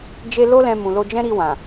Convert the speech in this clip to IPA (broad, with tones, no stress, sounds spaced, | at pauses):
d͡ʒ e˧ l o˦ l ɛ̃˧ m ũ˨ l o˧ d͡ʒ ɛ̃˦ ɾ i˧ w ã˨